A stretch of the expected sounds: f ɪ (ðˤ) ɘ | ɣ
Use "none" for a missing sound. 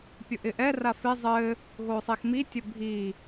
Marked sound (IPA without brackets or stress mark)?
zˤ